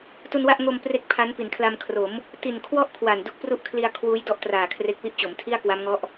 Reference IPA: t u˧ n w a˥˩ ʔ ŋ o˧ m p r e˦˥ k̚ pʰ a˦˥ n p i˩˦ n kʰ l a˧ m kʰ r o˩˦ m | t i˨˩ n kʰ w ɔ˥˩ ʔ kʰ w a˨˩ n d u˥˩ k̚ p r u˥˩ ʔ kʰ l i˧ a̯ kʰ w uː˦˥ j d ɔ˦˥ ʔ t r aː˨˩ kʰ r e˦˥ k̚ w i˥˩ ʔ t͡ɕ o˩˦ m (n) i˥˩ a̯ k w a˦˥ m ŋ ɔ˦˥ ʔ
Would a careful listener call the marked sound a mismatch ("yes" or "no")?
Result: yes